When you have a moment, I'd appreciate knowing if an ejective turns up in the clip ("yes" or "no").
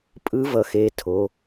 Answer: yes